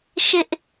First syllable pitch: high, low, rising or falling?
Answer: high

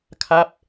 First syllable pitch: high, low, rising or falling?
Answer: falling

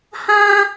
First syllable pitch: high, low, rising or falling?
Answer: high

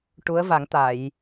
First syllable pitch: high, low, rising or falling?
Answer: rising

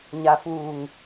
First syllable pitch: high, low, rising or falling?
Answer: low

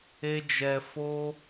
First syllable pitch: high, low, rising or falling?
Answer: high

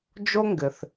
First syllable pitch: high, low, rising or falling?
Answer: high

